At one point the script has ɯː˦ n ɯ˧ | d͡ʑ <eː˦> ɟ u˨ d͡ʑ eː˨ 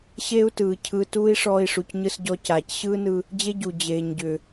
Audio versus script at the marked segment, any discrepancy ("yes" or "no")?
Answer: yes